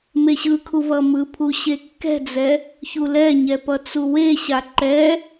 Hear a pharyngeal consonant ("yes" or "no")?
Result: no